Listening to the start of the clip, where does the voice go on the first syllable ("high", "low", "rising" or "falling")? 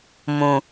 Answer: low